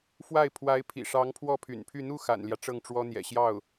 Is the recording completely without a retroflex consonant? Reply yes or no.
no